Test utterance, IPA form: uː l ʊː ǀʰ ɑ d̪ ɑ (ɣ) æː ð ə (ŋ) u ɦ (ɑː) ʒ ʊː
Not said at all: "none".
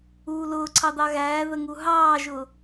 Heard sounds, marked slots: ɣ, ŋ, ɑː

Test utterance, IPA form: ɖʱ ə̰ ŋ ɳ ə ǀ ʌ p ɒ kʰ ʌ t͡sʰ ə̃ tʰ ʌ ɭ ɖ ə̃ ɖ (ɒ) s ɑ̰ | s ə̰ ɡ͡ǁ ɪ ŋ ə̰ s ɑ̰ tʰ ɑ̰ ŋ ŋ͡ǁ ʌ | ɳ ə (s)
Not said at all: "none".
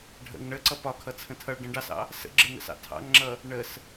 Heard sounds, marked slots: ɑ, s

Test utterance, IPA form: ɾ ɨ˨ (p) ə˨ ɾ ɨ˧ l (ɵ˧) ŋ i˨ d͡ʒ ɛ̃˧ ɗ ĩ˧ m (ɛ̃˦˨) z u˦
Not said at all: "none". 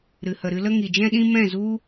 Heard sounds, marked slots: h, ə˧, ɛ̃˦˨

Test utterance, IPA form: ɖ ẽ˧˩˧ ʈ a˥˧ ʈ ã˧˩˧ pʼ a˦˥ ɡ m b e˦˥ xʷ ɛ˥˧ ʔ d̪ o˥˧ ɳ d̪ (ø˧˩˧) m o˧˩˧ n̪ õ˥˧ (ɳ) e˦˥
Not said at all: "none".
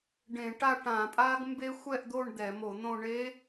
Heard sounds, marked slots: ɛ˧˩˧, ɳ

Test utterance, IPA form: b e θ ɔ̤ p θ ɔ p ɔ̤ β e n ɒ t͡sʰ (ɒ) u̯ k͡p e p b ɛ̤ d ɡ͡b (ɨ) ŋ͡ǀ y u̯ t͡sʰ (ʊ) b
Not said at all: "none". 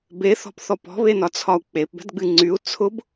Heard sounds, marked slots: ɒ, ɨ, ʊ

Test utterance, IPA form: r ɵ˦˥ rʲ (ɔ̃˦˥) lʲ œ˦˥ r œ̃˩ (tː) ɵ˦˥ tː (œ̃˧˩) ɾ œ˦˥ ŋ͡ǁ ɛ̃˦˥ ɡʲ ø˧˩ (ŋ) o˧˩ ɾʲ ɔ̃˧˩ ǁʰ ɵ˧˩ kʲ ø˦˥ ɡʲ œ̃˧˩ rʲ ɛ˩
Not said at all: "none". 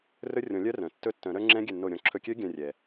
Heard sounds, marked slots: ɔ̃˨˩˦, tː, œ̃˨˩˦, nː

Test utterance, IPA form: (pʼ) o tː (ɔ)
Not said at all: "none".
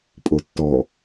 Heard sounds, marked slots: pʼ, ɔ

